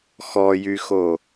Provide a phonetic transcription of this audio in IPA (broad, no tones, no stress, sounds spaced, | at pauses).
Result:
x ɔ j y x o